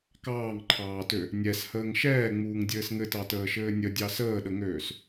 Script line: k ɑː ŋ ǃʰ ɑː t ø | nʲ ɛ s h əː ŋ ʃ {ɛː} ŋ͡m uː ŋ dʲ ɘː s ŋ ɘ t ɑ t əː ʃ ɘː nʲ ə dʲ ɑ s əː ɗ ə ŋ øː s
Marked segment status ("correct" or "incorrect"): correct